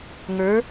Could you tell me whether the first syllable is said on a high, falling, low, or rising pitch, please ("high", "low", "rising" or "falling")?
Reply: rising